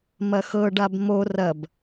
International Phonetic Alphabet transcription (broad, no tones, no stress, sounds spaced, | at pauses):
m ɐ x ɤ ɖ a b m o r ɐ b